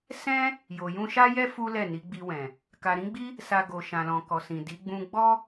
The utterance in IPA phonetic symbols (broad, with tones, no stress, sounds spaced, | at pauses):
s ɛ̃˦ | j o˨ j ũ˧ ʃ a˦ j ɛ˦ f u˦ l ɛ˦˨ n i˨˦ ɡ͡b i˧ w ɛ̃˨ | k a˨ ɾ ĩ˨˦ ɡ͡b i˦ | s a˨ ɡ o˨ ʃ ã˨ l ɔ̃˨ k ɔ˨ s ĩ˨ d i˨˦ ɡ͡b ũ˧ ɡ͡b ɔ˦